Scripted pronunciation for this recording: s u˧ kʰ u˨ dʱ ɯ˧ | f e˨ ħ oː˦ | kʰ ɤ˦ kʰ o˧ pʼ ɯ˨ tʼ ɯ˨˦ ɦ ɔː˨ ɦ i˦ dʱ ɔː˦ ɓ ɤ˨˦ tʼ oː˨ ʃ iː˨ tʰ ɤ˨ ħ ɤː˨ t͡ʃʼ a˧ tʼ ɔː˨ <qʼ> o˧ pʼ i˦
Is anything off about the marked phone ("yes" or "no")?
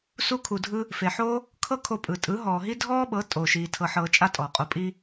no